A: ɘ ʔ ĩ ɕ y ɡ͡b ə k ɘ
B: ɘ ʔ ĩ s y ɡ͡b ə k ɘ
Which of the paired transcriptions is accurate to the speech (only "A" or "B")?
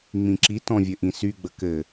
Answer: B